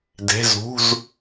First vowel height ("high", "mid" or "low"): mid